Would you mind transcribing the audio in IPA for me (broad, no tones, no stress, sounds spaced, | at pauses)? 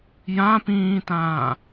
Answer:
j ã p ĩː t ãː